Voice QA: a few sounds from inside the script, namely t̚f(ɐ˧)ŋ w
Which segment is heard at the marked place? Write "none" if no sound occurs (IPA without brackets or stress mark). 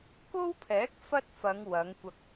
ɐ˨˧